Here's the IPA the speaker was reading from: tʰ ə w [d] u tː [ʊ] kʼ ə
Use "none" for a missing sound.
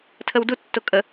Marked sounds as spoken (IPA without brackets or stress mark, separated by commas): d, ʊ